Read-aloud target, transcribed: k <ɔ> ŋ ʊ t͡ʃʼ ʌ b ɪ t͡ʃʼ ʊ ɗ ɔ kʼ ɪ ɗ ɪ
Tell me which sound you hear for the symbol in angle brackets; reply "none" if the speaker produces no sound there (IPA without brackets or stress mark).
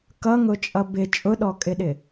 ʌ